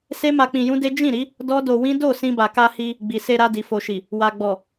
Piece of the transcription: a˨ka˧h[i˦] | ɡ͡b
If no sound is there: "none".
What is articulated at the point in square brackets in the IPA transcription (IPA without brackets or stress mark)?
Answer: i˧